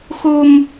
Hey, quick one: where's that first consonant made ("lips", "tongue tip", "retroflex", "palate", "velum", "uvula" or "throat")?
velum